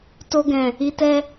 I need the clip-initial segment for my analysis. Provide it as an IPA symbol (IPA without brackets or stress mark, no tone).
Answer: t